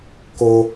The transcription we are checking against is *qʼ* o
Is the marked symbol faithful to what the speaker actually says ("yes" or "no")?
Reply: no